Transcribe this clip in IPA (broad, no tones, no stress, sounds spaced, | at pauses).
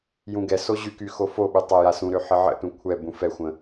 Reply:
j ũ ɡ ɛ s o ʑ y k y x o f o ɓ y tˤ ɛ j a s ũ ɾ ø ħ ə ʕ ə̰ t ũ kʷʰ ɛ b ũ f ɛ xʷ ə̃